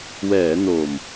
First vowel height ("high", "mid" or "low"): mid